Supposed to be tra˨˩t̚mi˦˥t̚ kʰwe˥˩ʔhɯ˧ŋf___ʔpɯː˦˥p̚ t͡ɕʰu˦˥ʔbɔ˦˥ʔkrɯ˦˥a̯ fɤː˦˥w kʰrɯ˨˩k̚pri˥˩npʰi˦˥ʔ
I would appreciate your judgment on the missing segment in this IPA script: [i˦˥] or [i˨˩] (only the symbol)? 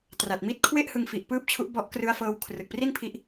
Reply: i˨˩